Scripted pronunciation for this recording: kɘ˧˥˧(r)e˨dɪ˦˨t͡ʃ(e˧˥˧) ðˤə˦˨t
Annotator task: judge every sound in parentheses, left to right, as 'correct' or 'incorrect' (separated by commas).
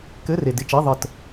correct, correct